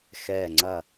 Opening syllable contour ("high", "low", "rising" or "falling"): falling